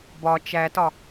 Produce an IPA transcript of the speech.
b ɒ t͡ʃ æ t ɒ

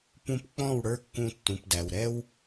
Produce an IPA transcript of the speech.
p ũ˧ p k͡p ɔ̃˦˨ w ɽ ə˞˦ kː ũ˧ tː ũ˨ p d æ˨ w ɾ ɛ˧ w

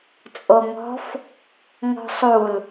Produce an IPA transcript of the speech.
t͡sʼ o ŋ ɔ̤ f | ŋ ɔ̤ sˤ u l

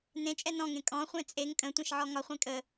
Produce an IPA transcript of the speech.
n ẽ t͡ʃʼ ɛ n ɔ̃ ŋ ẽ kʼ ɔ̃ χʷ ẽ t͡sʼ e ŋ kʼ ə̃ tʷ ɛ̃ ʃ ʕ ɔ ŋ ɒ χʷ ẽ kʼ ə

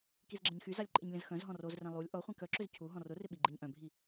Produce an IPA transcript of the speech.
k i z ɡ͡ǁ ə̃ ɲ x y z a lʲ ǃʼ ɪ ɲ lʲ ə̃ z x œ̃ z ɦ ɔ̃ r o z r ɛ̃ lˠ u lʲ ʔ ɔ χʷ ɛ̃ k œ ǁ ʏ z cʰ u ɦ ɔ̃ r ʊ r ɪ ɓ i ɡ͡ǃ ɪ ɲ ʔ œ̃ bʱ i

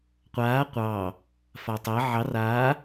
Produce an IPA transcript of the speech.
qʷ aː qʷ ɑ | f a tˤ ɜ ʕ ɑ r aː

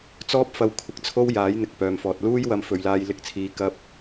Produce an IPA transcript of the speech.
t͡s ɔː˥ p̚ f ɐ˧ w kʷʰ ɪ˧ k̚ t͡sʰ o˥ w j aː˨˥ j n̪ ɪ˨ k̚ p œː˨ m f ɔː˨ t̚ l uː˥ j w ɐ˧ m f ɵ˨ ɥ l aː˧ j l ɪ˧ k̚ t͡sʰ iː˨˧ k ɐ˥ p̚

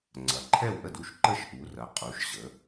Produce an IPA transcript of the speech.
ŋ͡ǀ ɐ˩˧ ǃʰ ɛ˥˨ w ʔ ə˥˨ d u˥˨ ʃ ǃ ə˥˨ ʃ ʔ u˩˧ r ɐ˩˧ qʼ u˩˧ ʃ ʑ ə˩˧

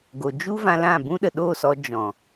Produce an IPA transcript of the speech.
ɡ o˨ d͡ʒ u˦ v ã˧ l ã˦˨ b ũ˦ ɗ ə˨ ɗ oː˦˨ s ɔ˧ d͡ʒ ɔ̃˨

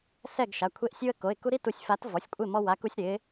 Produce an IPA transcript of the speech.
s ɛ˥˨ ɡ ʃ a˩˧˩ kʷʰ e˦ ʔ sʲ u˦ ə̯ k o˩˧˩ ɪ̯ k u˦ ɾ i˥˨ t u˧˩ sʲ f a˨˥ t v ɔ˩˧˩ sʲ kʷʼ ɪ˥˨ m ɔ˦ w a˨˥ k u˦ sʲ ɾ ɪ˨˥

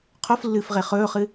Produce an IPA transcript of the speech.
qʰ o f lː ɨː f ʁ e χ ɵː χ ɨ

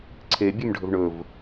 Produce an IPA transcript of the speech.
ǀʰ e bʲ ʉ m ɖʱ ɵ v ɳ ɵ v

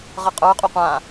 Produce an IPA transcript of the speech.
ʁ ʌ qʼ ə˞ qʼ u qʷ ã

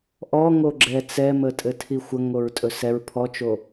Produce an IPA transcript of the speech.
ʔ ɔ ŋ o ɡ͡ǁ ɛ t͡s ɛ m ə tʼ ɘ tʰ i xʷ ə ŋ o ɹ tʼ ɵ s ɛ ɹ pʰ ɔ t͡ʃ o

